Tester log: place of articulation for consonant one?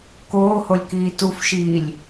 velar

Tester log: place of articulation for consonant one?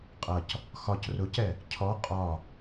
uvular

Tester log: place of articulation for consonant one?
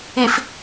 labial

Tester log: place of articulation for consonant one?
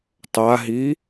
alveolar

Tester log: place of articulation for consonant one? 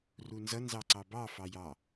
alveolar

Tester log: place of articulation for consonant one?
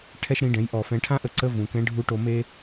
retroflex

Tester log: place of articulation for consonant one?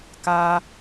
velar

